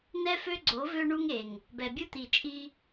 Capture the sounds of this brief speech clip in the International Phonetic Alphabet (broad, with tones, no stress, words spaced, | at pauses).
n̪ɛ˦fø˦ɡ͡ǀo˨˦ vø˦ɳu˦ŋe˨ŋ | bɛ˨bʲu˦t̪i˨t͡ʃʼi˦